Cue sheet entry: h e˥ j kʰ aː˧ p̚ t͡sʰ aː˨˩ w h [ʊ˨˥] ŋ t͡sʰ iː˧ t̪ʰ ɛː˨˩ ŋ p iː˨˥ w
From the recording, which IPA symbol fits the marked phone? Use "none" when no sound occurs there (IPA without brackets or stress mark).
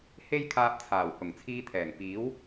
ʊ˨˩